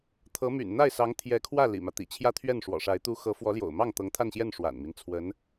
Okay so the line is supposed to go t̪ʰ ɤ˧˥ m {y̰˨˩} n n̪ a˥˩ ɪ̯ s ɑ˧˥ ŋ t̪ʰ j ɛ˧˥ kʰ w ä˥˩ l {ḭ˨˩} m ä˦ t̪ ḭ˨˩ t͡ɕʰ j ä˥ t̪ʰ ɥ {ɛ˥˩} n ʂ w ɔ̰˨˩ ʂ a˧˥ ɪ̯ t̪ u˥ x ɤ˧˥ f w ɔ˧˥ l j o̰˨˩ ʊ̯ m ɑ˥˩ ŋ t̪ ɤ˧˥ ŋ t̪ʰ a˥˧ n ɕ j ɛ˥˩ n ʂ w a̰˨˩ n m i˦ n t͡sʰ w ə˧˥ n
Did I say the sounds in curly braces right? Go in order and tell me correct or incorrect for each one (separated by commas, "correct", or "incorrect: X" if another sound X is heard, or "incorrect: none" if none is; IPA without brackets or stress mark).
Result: correct, correct, correct